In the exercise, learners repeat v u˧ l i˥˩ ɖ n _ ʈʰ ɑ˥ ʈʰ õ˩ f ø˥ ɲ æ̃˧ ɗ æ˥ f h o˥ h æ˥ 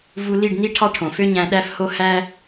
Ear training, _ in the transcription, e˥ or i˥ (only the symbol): i˥